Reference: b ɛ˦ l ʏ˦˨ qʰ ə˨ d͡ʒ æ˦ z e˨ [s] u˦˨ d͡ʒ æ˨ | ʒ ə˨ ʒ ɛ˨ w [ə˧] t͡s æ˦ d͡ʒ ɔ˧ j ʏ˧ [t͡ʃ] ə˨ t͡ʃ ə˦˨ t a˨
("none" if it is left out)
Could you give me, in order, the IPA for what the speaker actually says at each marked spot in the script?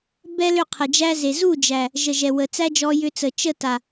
z, ə˨, t͡s

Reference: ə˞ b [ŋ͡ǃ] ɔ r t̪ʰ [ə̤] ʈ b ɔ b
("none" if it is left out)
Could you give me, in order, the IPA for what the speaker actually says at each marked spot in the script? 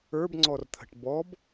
ŋ͡ǀ, ə̤

